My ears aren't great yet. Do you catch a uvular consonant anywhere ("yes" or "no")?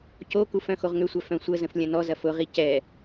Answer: yes